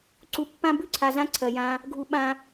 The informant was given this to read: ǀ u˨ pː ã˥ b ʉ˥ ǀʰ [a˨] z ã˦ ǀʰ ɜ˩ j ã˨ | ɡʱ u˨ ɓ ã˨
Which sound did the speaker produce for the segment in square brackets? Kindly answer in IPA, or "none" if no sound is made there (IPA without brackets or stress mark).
a˨